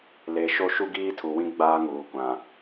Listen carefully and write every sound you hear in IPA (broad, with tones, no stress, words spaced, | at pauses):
le˨ʃo˦ ʃu˦ɡiː˦tʰu˨wĩ˦ ɡ͡baː˦ŋuː˨kʷã˨